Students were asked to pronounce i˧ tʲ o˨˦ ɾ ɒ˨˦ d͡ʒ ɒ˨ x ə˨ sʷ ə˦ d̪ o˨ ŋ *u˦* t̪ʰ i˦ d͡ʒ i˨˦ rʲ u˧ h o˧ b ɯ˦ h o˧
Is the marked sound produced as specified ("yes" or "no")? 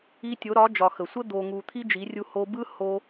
no